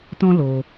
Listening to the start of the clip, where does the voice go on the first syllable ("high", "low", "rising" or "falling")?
high